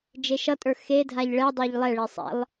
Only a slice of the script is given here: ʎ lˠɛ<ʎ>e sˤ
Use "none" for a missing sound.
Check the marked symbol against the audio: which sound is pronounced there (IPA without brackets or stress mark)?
ɭ